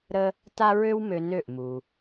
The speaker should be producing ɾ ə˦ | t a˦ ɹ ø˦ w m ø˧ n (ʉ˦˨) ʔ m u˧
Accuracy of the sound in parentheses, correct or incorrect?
incorrect